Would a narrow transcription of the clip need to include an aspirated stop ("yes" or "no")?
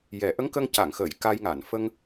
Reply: no